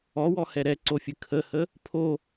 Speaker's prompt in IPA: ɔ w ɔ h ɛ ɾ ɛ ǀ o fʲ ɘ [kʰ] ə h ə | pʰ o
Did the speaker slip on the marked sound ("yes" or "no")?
no